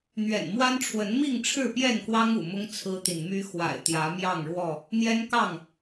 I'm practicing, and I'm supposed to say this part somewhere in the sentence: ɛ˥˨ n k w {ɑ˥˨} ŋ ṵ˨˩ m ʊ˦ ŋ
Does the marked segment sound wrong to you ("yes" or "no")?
yes